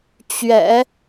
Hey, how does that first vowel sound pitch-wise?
low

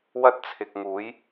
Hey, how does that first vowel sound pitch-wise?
high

